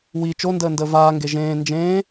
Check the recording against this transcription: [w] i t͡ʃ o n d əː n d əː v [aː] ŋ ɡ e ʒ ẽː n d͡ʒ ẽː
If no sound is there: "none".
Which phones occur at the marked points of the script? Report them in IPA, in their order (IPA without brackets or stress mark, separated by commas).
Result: w, aː